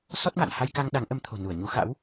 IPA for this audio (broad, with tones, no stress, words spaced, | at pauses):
sɔ˦˥t̚ma̰˧˨n ha˧jka˧ŋ ɗa˨˦ŋʔə˨˦mt̪ʰo̤˨˩ nu˧˩ə̯ɲu˨˦ xa̰˧˥w